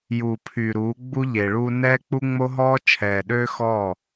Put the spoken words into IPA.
juː˨pʰyː˨ ɾuː˨˦ ɡ͡bu˦ʎeː˨ɭuː˦ nɛː˦k͡pu˦ŋ͡mo˦ɦɔː˦ t͡ʃʰɛː˨ɗøː˦xɔː˦˨

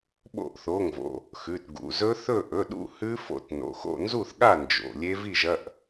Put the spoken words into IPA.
ɓo̰˥˨ʔθo˩˧˩ŋvo̰˩˧˩ | xʉ˩˧˩tɡṵ˩˧˩ zɵ˦˥θɵ˥˨ ʔɵ˩˧˩ɗṵ˥˨ hʉ˦˥fo̰˥˨t no̰˩˧˩xo̰˥˨nzu˥˨θɠa˥˨ nd͡ʒo̰˩˧˩lʲe˦˥ vi˥˨ʒɐ˩˧˩ʔ

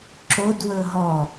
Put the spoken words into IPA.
ǁodwɵ ɦɔ

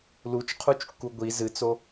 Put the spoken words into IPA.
lut͡ʃqʰut͡ʃkːu ɡʷi zɨt͡so

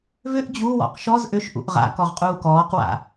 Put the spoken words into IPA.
vʏʔ d͡ʑuwɔ̰q ʃɔz ʔʏʃʔṵʔ ʁa̰ kɔʁqʼuːkɔːqwa̰

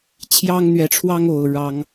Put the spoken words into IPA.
t͡ɕʰjɑ˦ŋn̪ɥɛ˨˦ʈ͡ʂʰwɑ˦ŋo˨˩ʊ̯ ɻɑ˦ŋ

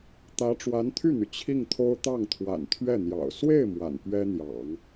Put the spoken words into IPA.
t̪ä˧˥ ʈ͡ʂwa˧˥nt̪ʰy˥˩n̪y˩ t͡ɕʰi˥˩ŋt̪ʰo˥ʊ̯ t̪ɑ˥˩ŋt̪ʰwa̰˨˩nt̪ʰɥɛ˥˩ n̪jɑ̰˨˩ʊ̯ swe˥˩ɪ̯ mwa̰˨˩n pɥɛ˥n̪jɑ̰˨˩˦ŋ

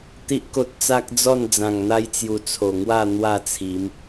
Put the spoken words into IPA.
t̪i˦ʔko˦t̚ t͡sa˦k̚ d͡zɔ˥˧n d͡zã˨˩ŋn̪a˧jt͡sju˨˩ t͡sʰo˨˩ŋwa˥˧ n̪wa˥˧t͡sʰi˨˦m

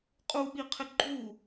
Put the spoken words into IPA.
qʼuɓiqʰɪ ɡ͡ǃu

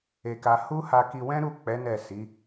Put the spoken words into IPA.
e˧ka˧ hu˦ha˧ki˧wɛ̃˦ ɾu˦˨k͡pɛ˨˦ nɛ˦˨si˨˦

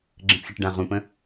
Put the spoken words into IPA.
ɡ͡ǁə̃pxʲɛʈɖã ʁũpə̃

